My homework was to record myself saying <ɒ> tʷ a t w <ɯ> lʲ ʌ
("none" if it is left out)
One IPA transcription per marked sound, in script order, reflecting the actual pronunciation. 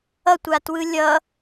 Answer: ʌ, ɯ

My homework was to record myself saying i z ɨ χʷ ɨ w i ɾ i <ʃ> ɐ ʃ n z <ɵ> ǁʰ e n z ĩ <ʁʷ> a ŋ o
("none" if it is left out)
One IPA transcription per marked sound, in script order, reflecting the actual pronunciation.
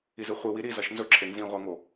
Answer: z, ɵ, ʁʷ

